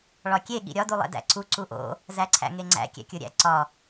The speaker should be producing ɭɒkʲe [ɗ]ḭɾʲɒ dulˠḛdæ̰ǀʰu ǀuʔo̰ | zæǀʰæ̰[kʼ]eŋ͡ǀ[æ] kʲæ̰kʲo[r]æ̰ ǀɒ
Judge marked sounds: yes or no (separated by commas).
no, no, no, no